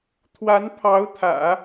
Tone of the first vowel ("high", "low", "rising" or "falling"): rising